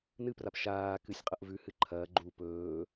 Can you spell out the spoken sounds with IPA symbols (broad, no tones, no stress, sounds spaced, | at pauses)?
n ɨ p r a p ʃ aː k ɨ sʲ qʼ ɐ ʔ v ʉ h ɨ ǃʰ ɐː ɡ͡ǃ u p ɵː